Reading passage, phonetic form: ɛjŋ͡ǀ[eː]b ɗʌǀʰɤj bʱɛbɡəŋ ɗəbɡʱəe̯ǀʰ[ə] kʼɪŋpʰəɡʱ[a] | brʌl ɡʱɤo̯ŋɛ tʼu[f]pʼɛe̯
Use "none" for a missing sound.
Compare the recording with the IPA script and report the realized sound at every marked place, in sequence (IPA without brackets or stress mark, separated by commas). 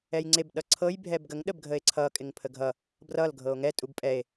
e, ʌ, ʌ, b